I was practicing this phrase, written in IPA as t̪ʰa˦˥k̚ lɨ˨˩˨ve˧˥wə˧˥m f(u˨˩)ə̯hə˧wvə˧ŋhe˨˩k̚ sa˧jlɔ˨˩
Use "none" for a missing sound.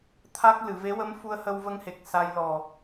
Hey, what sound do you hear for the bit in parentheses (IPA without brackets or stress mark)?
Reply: u˧